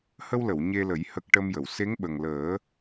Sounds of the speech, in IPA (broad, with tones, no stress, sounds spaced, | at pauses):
h ə˧ w l ə˨˩˨ w ɲ e˧ l ə˨˩˦ j h ə˨˩ k̚ ʈ ə˧ m j ə˨˩˨ w s e˧˥ ŋ ɓ ə˨˩ ŋ l əː˨˩˦